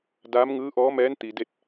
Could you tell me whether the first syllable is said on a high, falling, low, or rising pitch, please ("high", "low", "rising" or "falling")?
rising